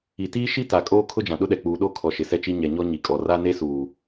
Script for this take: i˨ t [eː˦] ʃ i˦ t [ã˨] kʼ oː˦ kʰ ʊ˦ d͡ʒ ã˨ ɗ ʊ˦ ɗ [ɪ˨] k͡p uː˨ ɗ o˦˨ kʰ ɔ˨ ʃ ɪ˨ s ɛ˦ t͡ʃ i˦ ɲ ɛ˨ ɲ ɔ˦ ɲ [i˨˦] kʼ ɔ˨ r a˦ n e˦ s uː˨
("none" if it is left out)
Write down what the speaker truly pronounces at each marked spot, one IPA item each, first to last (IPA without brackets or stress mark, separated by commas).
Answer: iː˦, a˨, ɛ˨, i˨